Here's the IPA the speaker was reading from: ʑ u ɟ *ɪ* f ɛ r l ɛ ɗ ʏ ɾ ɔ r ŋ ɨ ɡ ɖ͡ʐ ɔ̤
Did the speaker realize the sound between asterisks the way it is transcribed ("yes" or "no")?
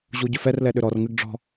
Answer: no